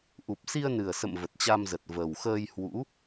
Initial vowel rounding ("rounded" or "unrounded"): rounded